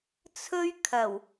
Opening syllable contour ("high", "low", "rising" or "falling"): high